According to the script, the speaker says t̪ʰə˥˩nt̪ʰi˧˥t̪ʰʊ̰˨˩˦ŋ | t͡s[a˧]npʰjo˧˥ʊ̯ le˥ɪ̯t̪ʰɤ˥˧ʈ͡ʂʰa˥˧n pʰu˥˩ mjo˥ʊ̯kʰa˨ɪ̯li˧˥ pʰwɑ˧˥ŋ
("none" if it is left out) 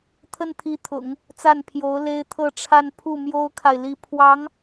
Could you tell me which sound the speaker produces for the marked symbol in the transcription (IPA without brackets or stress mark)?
a˥˩